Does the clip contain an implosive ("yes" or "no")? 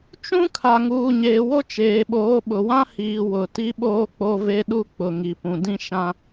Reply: yes